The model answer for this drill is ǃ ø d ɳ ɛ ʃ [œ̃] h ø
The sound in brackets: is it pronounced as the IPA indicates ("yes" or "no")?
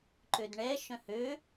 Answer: yes